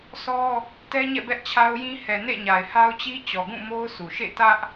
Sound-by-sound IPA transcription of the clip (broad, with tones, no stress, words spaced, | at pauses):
sʰɔ˦ | tɛ˦ɲɛ̰˦˨ bɛ˦ʔt͡ɕʰa˦ʊ̯jĩ˦ hɛ˨nḛ˦˨ɲa˨ɪ̯ha˦ʊ̯ t͡ɕi˦t͡ɕɔ˨ɡũ˦˨ mo˦ʊ̯su˨ ʃḛ˦˨tä˦ʔ